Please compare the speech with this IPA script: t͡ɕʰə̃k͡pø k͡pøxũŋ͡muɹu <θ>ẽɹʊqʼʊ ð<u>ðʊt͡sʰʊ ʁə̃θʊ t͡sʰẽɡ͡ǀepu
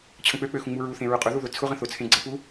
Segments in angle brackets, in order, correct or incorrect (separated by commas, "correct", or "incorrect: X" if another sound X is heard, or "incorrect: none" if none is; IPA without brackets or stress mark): correct, correct